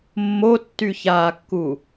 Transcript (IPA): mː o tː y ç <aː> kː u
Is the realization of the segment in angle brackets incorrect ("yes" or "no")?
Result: no